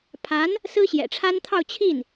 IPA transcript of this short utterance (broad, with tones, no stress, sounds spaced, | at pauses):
pʰ a˧˥ n | s ɹ̩˥ ɕ j ɛ̰˨˩ ʈ͡ʂʰ a˥ n t̪ʰ ɑ˥˧ ʊ̯ t͡ɕʰ i˥˩ n